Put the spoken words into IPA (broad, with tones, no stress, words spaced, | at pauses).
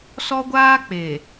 sɔ˦ɡʷaː˦ k͡pe˨